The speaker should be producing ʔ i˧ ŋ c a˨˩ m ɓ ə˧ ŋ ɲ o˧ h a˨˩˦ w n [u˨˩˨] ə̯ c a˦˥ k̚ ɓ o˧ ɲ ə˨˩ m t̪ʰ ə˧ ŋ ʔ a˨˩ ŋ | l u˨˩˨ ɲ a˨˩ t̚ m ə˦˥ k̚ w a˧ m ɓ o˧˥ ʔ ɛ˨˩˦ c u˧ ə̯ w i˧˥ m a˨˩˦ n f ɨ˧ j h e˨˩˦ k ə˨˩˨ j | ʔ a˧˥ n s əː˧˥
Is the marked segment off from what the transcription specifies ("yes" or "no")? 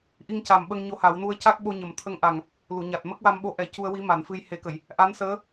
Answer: yes